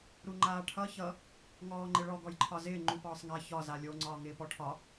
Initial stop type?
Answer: click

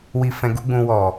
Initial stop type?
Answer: plain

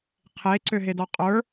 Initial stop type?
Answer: aspirated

